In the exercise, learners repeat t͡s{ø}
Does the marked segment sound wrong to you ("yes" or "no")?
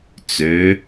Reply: no